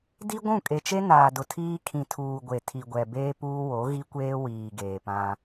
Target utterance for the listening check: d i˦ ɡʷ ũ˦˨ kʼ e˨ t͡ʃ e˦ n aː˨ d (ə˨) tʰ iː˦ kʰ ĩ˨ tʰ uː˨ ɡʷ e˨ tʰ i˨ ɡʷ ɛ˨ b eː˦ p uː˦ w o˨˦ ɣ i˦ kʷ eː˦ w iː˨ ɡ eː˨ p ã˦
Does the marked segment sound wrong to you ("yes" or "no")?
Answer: yes